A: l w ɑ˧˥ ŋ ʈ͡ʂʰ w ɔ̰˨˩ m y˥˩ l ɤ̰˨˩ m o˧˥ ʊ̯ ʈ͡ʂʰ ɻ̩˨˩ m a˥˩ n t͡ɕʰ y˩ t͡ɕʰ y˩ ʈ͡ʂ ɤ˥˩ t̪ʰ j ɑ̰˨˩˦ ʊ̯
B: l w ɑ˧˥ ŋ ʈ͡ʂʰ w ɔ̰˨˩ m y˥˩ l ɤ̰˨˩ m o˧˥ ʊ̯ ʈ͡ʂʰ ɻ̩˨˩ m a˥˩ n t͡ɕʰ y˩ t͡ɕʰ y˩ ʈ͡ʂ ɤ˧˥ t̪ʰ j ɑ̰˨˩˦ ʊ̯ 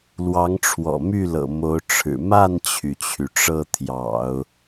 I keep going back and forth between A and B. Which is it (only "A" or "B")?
A